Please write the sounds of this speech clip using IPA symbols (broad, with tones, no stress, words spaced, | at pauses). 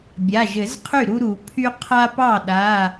bʲa˩˧˩ʒɘ˨˩˦zqʰy˥˩ ɾu˦ɾu˨˩˦pʰy˦ qʰa˦ pɑ˥˩ɗa˩˧˩